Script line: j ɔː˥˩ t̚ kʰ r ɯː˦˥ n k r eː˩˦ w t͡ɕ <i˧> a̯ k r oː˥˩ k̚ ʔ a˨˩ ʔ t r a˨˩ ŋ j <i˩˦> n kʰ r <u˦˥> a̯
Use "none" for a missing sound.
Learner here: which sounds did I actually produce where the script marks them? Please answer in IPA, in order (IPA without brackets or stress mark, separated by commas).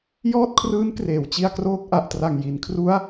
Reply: i˧, i˩˦, u˦˥